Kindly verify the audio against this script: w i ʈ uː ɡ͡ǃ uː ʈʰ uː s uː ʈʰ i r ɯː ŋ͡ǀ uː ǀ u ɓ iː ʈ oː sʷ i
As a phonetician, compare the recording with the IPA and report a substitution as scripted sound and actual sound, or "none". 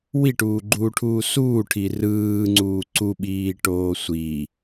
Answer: none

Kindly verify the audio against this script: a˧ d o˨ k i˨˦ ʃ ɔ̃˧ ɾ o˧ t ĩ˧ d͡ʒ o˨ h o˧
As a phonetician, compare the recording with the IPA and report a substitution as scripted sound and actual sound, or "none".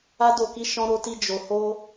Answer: ĩ˧ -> i˧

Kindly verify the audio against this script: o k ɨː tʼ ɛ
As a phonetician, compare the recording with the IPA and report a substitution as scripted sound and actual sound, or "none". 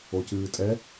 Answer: k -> c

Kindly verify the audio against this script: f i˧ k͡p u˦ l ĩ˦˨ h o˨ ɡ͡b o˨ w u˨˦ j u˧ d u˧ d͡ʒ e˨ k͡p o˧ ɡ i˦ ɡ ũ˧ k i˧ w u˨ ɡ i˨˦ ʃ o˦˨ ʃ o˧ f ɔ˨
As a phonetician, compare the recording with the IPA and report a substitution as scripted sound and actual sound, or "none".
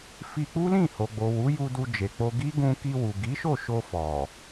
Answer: none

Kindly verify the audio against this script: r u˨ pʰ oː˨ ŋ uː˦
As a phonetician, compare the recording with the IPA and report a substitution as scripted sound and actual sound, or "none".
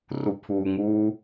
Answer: oː˨ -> uː˨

